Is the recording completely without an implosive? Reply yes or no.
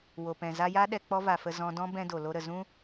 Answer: no